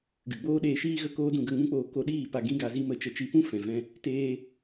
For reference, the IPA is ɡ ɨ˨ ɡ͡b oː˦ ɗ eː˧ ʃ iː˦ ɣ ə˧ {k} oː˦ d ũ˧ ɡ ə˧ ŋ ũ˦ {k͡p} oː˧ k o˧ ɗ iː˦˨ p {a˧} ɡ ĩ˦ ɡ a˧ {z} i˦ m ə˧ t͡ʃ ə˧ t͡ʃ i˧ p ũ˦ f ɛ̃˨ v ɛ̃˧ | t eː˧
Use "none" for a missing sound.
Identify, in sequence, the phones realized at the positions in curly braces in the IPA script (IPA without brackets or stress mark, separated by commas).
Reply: k, k͡p, a˧, z